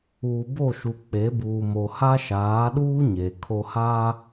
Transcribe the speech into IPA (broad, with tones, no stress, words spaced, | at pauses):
uː˨bo˦˨ʃu˨ k͡pe˨˦buː˨mo˨ ha˦ʃaː˨˦ɗuː˦ ɲe˨ kʰo˨haː˦